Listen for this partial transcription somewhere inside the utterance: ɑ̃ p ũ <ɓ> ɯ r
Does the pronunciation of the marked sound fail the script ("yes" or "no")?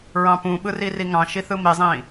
no